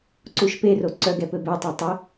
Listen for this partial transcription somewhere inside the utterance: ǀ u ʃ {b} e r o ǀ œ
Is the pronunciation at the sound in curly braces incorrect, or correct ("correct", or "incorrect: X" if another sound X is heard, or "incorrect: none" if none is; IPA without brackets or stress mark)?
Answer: incorrect: p